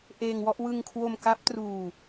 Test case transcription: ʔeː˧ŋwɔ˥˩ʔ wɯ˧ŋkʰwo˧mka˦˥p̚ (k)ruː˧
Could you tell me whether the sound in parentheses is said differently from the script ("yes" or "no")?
yes